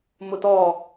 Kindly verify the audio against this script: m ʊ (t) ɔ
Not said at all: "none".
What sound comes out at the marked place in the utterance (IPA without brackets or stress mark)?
t